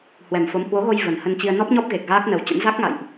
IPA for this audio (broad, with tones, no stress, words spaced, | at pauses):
hwɛ˨˩mfo˨˦m hwo˨˦ɣo˧j və˨˩nhə˧nt͡ɕi˧ə̯ nɔ˦˥p̚ɲɔ˦˥p̚ ɣe˨˩k̚ɣaː˦˥k̚nə˨˩wt͡ɕə̰˧˥n za˦˥k̚ŋa̰˧˨jʔ